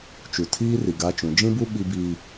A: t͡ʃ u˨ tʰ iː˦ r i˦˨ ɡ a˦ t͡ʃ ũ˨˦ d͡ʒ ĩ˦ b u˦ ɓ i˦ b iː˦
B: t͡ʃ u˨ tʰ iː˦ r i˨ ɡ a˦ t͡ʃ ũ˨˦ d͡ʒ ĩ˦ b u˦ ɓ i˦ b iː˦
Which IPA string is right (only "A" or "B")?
B